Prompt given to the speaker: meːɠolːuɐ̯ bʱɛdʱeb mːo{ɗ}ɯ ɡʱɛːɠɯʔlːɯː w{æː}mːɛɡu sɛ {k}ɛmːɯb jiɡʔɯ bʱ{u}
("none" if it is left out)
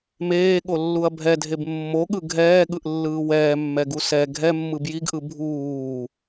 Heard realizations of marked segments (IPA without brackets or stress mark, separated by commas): ɠ, ɛː, ɡʱ, uː